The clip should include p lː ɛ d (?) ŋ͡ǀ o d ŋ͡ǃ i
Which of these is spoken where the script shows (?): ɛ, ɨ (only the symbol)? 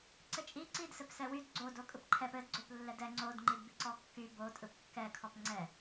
ɛ